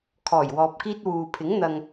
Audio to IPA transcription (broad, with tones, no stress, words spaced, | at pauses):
kʰɔː˨˩jwɔː˨p̚kiː˧t̚ wuː˨pʰɪ˨˥ŋ n̪ɐ˧ŋ